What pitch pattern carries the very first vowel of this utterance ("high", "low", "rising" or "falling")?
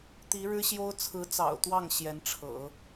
rising